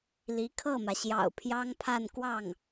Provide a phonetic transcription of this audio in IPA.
l i˧˥ kʰ ɤ˥˩ m ä˩ ɕ j ɑ̰˨˩ ʊ̯ pʰ j ɑ˥ ŋ pʰ a˥˧ n k w ɑ˥˩ ŋ

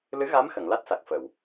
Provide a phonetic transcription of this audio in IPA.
l ɨ˧˥ ɣ a˧˥ m x ə˨˩˨ ŋ l a˦˥ t̚ s a˨˩ k̚ f ə˨˩˨ w

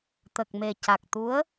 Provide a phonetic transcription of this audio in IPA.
t̪ ə˨˩ k̚ m e˨˩ c a˨˩ k̚ t̪ u˧˥ ə̯

